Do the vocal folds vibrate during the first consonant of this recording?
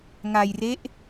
yes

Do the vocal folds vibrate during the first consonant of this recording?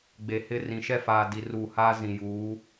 yes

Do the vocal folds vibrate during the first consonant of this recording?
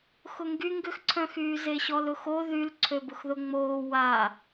no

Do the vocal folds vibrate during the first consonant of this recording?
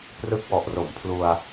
no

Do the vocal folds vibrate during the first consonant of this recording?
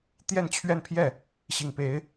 no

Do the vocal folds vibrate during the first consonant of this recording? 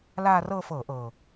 yes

